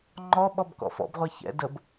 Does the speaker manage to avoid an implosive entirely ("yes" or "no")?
no